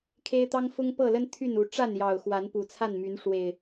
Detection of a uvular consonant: absent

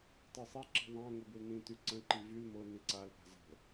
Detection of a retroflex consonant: absent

